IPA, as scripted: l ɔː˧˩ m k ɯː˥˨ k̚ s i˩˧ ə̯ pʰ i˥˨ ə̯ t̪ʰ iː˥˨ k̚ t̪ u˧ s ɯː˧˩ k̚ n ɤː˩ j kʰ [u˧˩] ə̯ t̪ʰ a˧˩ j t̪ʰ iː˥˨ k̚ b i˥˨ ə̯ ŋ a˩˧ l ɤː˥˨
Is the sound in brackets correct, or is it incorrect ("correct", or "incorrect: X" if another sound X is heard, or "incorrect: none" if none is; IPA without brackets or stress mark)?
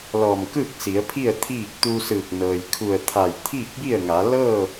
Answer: correct